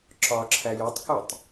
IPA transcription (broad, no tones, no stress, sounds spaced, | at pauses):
ǁ ɒ ǁʰ æ j o tˤ k u tˤ